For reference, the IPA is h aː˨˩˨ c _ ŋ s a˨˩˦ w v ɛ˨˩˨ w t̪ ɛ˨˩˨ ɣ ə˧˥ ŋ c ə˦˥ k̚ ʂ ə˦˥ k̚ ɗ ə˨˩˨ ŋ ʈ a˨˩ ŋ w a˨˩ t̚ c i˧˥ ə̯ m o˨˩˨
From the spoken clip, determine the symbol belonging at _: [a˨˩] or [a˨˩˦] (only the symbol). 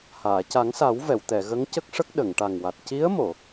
a˨˩˦